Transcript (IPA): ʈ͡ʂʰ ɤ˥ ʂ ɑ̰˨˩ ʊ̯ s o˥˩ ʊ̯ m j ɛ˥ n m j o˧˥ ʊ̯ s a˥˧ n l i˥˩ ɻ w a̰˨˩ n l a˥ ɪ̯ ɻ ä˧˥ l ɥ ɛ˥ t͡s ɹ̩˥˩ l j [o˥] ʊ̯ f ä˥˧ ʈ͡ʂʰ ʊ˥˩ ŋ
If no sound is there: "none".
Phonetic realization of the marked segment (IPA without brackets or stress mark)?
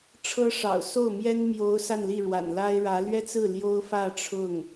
o˥